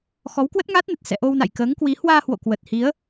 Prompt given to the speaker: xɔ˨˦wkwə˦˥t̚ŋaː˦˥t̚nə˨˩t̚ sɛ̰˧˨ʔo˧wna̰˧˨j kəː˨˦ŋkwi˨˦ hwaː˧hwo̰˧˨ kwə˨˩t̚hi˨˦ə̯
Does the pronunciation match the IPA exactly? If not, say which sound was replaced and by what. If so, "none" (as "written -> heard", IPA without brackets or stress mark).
none